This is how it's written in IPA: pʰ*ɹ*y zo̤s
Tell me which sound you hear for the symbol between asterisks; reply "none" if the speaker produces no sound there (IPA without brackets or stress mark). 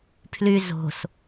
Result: l